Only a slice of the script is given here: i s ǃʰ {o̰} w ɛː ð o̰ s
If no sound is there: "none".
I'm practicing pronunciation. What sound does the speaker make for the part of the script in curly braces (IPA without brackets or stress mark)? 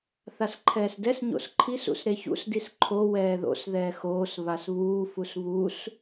o